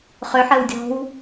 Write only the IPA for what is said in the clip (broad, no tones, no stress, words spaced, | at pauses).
χøħ əːwdʲɔ̤w